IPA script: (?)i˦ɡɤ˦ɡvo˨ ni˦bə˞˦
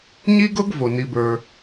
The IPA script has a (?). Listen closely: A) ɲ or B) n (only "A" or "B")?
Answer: A